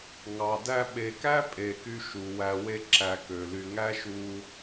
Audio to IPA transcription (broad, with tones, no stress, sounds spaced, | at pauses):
ŋ ɑ˨ d æ˦ ɓ e˨ k æ˦ pʼ e˨ k y˧ ʃ u˨ w æ˧ w e˦ ǁ æ˧ k ø˨ l y˧ ŋ æ˦ ʃ u˧